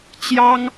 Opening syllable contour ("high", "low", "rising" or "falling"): high